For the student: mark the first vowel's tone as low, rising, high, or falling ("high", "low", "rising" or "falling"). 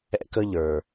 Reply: high